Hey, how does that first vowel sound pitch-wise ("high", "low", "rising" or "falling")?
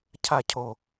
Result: falling